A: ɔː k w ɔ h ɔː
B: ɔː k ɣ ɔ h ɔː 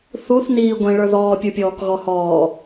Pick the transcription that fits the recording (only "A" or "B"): B